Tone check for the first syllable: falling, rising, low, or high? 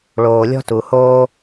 low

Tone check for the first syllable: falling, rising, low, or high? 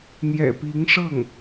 low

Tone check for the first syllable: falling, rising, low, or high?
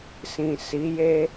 low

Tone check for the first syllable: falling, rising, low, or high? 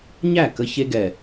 falling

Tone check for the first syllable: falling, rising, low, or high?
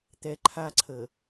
low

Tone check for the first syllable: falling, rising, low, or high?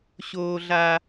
high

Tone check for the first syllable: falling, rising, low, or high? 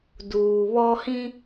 low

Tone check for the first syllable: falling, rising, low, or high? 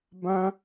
high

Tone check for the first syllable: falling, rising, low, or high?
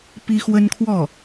high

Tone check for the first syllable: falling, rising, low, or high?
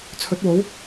rising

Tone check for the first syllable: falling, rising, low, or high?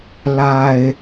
low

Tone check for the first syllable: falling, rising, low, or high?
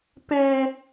high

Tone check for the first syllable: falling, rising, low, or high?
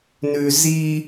low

